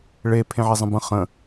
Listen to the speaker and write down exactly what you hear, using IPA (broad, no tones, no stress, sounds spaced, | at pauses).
ɭ e pʰ ẽ ʕ e zˤ ə̃ b ə̃ χ ə̃